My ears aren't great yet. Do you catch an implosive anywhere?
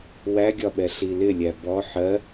yes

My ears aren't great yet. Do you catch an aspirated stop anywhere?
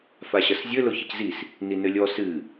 no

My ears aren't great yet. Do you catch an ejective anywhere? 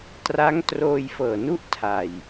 no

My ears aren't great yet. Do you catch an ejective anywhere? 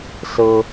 no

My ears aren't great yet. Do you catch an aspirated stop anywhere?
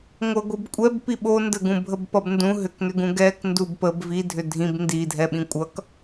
no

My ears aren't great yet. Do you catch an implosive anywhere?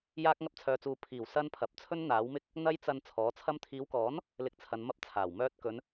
no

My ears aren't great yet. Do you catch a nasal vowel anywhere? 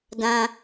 yes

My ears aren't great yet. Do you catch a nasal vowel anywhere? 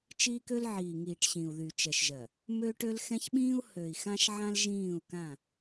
yes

